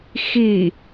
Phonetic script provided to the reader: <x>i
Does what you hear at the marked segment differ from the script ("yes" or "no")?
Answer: no